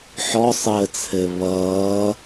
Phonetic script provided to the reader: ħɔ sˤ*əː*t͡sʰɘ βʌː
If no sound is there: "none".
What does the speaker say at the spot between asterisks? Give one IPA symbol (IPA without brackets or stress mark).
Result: əː